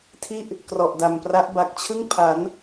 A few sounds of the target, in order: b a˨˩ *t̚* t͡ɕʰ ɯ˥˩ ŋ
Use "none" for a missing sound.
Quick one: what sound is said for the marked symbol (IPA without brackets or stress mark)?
k̚